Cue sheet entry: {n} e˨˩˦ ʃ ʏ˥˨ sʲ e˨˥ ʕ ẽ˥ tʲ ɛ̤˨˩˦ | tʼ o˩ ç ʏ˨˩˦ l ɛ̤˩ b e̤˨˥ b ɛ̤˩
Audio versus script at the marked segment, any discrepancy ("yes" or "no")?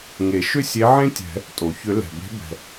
yes